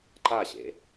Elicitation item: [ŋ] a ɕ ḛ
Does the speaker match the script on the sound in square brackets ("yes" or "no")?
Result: no